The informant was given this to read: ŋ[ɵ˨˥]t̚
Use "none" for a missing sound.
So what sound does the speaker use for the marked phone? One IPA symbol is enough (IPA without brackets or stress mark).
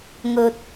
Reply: ɵ˨